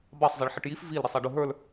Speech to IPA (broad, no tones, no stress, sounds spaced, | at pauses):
b ɑ sˤ zˤ i ɭ ħ ə ʈ j i f v i l ɾ i sˤ ɑ ɖ ʊ ɦ ə˞ l